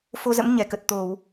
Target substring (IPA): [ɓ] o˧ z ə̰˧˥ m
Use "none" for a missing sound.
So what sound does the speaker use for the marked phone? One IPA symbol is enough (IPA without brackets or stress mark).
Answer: f